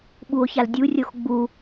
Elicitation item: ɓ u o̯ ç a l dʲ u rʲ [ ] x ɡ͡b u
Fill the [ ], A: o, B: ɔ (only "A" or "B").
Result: A